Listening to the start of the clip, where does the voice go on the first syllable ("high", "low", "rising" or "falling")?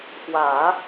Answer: low